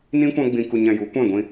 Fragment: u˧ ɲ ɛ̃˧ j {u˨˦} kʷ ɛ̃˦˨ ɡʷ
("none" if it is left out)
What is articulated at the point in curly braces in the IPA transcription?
u˨˦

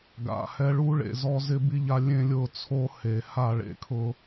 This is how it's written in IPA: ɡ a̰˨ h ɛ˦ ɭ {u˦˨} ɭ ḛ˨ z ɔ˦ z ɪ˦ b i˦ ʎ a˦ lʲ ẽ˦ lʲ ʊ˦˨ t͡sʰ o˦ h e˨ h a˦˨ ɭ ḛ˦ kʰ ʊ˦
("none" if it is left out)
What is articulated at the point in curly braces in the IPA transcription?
u˦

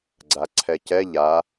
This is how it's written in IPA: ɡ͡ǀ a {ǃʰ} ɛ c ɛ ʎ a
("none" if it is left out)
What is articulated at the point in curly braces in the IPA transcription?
ǀʰ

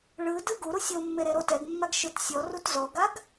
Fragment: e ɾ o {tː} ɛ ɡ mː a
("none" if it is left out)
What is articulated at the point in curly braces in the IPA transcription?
t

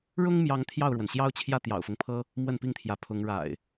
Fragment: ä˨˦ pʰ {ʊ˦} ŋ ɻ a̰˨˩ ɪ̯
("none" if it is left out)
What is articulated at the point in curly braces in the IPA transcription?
ʊ˨˦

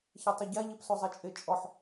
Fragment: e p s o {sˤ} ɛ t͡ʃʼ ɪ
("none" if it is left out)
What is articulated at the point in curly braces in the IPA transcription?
zˤ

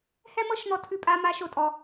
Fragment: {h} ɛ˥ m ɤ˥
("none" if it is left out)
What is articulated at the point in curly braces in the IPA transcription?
h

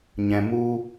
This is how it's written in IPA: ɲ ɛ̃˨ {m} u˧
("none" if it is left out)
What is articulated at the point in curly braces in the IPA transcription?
m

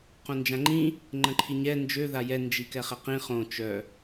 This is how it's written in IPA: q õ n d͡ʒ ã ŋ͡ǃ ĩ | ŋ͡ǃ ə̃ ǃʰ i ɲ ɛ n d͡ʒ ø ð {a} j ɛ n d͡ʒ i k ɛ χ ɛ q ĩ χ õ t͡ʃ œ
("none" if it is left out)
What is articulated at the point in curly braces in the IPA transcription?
a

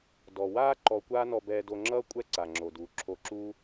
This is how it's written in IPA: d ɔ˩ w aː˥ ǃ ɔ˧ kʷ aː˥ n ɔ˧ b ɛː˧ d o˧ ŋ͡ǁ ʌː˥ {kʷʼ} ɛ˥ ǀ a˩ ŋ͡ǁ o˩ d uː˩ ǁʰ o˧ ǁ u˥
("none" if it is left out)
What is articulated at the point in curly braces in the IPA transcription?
kʷʼ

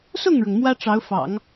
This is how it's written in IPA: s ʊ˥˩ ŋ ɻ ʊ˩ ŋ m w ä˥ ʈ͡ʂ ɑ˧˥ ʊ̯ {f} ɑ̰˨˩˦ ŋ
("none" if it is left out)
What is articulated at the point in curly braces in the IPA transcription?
f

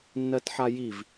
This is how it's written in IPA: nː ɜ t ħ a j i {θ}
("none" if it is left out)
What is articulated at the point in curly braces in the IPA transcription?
v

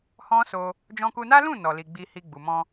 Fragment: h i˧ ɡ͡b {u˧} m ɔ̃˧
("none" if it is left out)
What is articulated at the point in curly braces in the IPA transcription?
u˨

